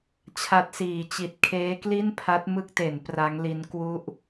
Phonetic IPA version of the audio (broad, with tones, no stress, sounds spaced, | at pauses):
t͡ɕʰ a˦˥ t̚ s iː˨˩ t͡ɕ i˨˩ t̚ kʰ eː˦˥ k l i˥˩ n pʰ a˦˥ t̚ m ɯ˥˩ k̚ t e˩˦ n p r a˦˥ ŋ l i˦˥ n k w u˦˥ ʔ